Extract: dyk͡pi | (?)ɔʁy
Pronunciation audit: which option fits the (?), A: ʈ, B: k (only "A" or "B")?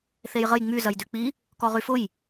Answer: B